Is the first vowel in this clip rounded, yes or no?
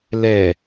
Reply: no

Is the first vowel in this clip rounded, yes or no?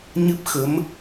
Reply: no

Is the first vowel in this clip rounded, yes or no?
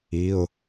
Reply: no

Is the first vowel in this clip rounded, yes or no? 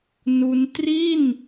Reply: yes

